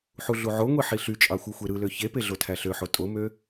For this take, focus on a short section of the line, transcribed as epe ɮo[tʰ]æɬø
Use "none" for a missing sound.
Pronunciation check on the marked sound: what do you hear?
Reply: tʰ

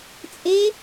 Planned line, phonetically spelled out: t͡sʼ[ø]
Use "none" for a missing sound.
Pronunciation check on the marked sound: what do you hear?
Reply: e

